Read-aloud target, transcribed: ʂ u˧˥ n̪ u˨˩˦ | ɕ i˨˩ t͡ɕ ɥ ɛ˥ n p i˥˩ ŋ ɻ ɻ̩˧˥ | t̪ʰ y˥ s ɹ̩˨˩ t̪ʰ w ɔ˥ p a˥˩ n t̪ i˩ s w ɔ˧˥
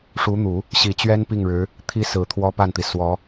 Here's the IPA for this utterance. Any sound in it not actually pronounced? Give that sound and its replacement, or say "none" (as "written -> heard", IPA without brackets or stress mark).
y˥ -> i˥